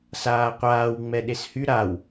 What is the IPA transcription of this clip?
saːqʷaːw ŋ͡mɛɗeshy ɾaw

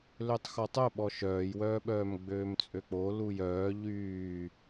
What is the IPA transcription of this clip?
løtˤxɔtˤœɓɔ ʃœːjwœːɓœːm ɡ͡bøːmt͡sʼøk͡po lujœː ʎyː

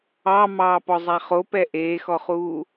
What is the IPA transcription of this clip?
ɑ mɑːpɔzˤæχo pɛʔeːxɔχuː

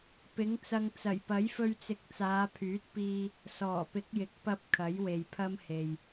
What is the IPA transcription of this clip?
pɪ˨˥ŋt͡sɐ˧ŋ t͡sɐ˨˩jpɐ˨˥jfɵ˧ɥt͡sɪ˨˥k̚ t͡saː˨˧pʰyː˨˥t̚piː˧ | sɔː˨˩pɪ˨˥k̚jɪ˨˥k̚ pɐ˧p̚ kʰɐ˨˥jwe˨jpʰɐ˥mhe˨j

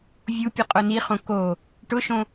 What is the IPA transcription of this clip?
vʲupʲɨ qʼoniχõ ko | ʈʊʃõ

